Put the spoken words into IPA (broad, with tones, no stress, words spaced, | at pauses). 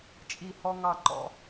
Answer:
t͡ʃʼi˧˩hɔ˧ ŋɑ˧˩ ǃɔ̰˥˧